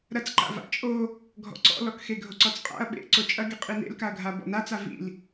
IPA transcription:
ɾɐt͡sǃa̰ va̰t͡ʃʼo | ɡʱɔ̰ǀɔ̰lɔkxe ɡʱoǀɔt͡sqʼa̰ɐ̯ ɓḛ ǀot͡ʃʼɐɡe qʼinḛlkaɐ̯ɡʱa bɔ̰nat͡s avḭl

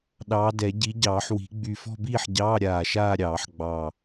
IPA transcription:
ɗɑː˨˦dɛ˨˩˦ ɟi˨˦ɟɑː˨˩˦ħwi̤˨˩˦ ɡ͡by˧˩fɔ̤˥˧biː˥˧ħɟɑː˧˥˧ ɾʲaː˧˩ʃaː˥˧ɾʲɑː˨˩˦ħ ɡ͡bɑ˧˩

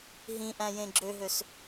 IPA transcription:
ɦĩʔæ̃ jẽɡ͡ǁøɦøs

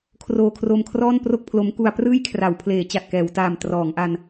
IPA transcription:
kʰroː˧kʰro˧m kʰrɔː˥˩npro˥˩k̚pʰlo˦˥m ku˧a̯prɯː˥˩jkʰra˩˦w pʰleː˩˦t͡ɕa˨˩t̚kɛː˩˦wtaː˨˩m trɔː˩˦ŋʔa˧n

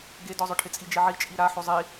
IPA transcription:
ɡedɔzˤʊʈʰɪ t͡sʼid͡ʒiʕi t͡ʃʼiɾaħo zˤi

